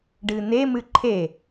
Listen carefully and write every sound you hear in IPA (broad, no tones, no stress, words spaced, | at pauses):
ɖɨn̪e mɨǃʰe